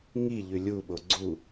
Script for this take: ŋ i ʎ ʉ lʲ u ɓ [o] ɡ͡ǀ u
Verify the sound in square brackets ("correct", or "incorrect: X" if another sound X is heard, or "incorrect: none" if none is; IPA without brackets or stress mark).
correct